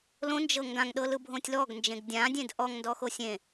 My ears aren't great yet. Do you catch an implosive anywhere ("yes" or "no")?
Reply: yes